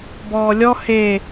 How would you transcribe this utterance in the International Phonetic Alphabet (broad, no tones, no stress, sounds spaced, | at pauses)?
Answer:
b ɔː lʲ ɔ h e